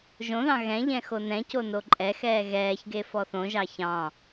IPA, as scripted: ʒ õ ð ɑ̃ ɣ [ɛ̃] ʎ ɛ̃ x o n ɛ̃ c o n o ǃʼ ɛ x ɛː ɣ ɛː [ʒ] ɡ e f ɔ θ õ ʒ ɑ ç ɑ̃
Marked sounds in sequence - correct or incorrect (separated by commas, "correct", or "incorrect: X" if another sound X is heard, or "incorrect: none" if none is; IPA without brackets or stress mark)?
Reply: correct, incorrect: ç